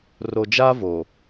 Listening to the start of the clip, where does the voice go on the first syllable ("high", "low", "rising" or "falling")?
low